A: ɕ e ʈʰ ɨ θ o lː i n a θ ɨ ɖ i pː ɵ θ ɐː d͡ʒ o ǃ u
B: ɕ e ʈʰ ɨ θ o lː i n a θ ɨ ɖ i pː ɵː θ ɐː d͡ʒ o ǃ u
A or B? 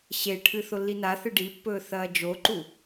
B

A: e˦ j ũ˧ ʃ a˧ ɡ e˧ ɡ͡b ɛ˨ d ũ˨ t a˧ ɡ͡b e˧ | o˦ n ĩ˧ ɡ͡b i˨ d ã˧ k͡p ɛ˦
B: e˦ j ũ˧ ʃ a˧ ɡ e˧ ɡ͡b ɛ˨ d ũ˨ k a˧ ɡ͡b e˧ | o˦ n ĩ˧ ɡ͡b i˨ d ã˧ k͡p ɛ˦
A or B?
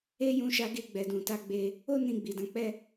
A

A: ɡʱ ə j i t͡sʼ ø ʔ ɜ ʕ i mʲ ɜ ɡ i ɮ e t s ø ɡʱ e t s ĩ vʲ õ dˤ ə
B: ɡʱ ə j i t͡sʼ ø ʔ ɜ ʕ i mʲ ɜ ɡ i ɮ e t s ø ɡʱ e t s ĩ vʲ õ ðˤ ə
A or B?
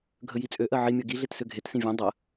A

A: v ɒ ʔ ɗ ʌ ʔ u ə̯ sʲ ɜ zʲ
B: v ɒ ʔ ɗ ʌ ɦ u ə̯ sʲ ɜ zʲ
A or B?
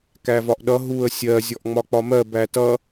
B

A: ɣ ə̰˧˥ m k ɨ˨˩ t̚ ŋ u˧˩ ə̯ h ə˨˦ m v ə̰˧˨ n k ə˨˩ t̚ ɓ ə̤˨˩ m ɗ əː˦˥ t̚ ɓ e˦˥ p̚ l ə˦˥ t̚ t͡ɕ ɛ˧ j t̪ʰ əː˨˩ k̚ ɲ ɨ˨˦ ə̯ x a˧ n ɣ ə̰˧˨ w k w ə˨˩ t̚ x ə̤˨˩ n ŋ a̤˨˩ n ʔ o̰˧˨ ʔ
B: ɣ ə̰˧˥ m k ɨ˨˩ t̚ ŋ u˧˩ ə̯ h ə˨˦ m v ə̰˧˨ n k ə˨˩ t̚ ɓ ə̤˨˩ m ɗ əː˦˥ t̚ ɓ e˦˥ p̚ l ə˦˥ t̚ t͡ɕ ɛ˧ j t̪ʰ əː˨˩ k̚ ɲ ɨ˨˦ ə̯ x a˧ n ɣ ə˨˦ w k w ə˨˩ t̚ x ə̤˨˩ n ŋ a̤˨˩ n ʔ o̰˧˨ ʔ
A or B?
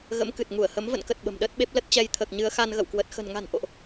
A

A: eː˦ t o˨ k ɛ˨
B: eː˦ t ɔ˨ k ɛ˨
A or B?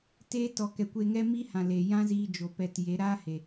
B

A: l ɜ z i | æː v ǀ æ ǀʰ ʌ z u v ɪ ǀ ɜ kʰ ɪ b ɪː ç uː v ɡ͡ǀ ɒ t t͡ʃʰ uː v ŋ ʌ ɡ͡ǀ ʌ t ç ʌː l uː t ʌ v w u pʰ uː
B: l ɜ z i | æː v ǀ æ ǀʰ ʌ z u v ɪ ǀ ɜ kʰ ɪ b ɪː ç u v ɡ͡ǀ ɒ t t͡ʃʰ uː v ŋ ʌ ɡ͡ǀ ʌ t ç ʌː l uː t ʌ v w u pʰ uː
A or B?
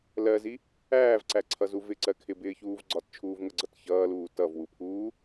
A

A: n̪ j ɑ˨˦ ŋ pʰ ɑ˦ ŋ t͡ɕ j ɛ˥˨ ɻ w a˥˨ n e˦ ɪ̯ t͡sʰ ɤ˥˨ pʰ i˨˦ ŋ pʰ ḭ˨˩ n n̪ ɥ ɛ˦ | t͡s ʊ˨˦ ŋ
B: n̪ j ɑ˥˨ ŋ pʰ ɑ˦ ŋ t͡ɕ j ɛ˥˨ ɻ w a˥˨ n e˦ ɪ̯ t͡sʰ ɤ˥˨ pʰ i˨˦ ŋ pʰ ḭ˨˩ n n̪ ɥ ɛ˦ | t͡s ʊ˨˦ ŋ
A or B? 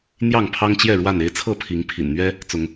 B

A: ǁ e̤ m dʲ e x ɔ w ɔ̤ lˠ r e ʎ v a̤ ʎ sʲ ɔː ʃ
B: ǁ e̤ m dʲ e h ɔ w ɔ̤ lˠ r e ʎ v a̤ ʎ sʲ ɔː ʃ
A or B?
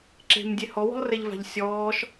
B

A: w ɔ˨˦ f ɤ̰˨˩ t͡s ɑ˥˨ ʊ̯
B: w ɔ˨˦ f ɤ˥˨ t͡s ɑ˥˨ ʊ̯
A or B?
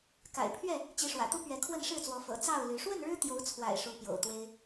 A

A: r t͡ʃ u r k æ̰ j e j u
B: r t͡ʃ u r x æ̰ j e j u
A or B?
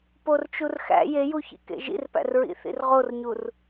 B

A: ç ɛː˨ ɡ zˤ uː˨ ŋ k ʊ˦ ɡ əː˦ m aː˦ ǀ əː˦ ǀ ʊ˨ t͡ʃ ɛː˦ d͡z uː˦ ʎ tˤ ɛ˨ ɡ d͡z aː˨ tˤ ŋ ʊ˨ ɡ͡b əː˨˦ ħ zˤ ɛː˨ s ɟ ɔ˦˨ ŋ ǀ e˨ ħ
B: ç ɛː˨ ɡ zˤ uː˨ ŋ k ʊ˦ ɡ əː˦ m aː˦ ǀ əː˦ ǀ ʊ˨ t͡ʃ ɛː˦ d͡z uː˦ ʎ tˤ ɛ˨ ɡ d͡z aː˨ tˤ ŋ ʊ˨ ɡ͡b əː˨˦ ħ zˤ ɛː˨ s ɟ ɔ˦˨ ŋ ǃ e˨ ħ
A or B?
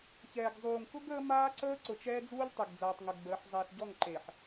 B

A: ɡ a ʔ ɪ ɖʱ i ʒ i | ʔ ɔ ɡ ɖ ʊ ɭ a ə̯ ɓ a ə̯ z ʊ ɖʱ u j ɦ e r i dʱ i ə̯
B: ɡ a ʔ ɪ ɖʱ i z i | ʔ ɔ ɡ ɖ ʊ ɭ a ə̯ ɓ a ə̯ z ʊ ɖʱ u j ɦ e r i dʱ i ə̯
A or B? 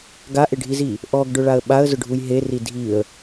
B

